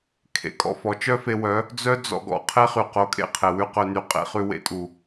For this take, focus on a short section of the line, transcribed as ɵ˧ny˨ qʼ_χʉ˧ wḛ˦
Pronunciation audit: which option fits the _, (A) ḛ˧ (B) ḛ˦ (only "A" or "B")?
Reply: B